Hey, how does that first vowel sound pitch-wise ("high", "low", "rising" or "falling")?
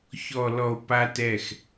low